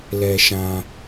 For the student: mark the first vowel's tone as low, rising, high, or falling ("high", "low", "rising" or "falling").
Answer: low